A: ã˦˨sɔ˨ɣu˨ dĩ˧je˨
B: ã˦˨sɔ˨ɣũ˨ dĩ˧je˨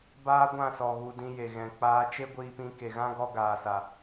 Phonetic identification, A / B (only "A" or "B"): A